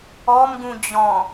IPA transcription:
ɔ m ɡ ũ d͡ʑ ɔ̃

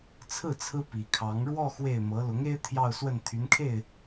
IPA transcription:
t͡sʰ ɹ̩˥˩ t͡sʰ ɹ̩˥ p i˨˩ kʰ ɑ˧˥ ŋ ɻ w ɔ˥˧ x w e˥˩ ɪ̯ m ɤ˧˥ l ʊ˧˥ ŋ e˥ ɪ̯ t̪ʰ j ɑ˥˧ ʊ̯ s w ə˥˩ n t̪ʰ y˧˥ n kʰ e˥˩ ɪ̯

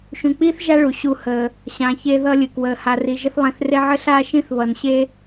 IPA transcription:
ʃ ũ˨ k͡p iː˥ θ ʒ a˦ ɭ u˩ ɕ u˨ h əː˩ | ɕ ã˨ ç e˦ ð ʌ˦ lʲ ɨ˩ k w əː˩ h a˨ r i˨ ʒ ə˥ θ lˠ ẽ˨ θ r e˦ ʕ ɘ˥ ɬ aː˥ ʃ ĩ˥ θ β ʌ˩ n ɕ e˦

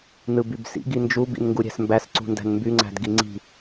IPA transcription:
n ɯ b y b s ḭ ɡ i n d͡ʒ u b ḭ n ŋ ɡ u ɾʲ æ̤ s m b æ s ǀ ṳ n d æ̤ n m b y ŋ͡ǀ æ̤ d ɡ i ŋ͡ǀ i̤

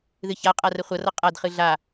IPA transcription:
ð ɨ ç a qʼ a r ə χʷ ʌ r ʌ qʼ a d χ ɨ ɮ a

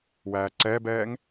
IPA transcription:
w æː ǀ ɛː b ɛː ŋ

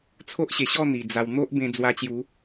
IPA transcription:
t͡sʰ o˦ ʔ ɕ e˨˩ ɕ ɔ˥˧ n̪ i˨˩ d͡z a˧ w n̪ o˦ ʔ b ẽ˧ d͡z w a˧ t͡ɕ j u˨˦

